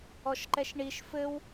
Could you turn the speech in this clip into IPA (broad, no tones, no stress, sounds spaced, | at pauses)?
ɔ ʃ ǃ ɛ ʃ ɳ i ʃ f ɘ w